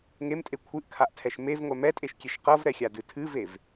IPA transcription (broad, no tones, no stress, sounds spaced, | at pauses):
ŋ e m tʼ e kʷʰ ɨ ʔ kʰ a ʔ tʰ ɛ ʃ m e v ŋʷ ɛ m ɛ tʼ e ʃ kʲ e ʃ q ɤ v ɾ ɛ xʲ a d ɨ tʰ ɨ v e v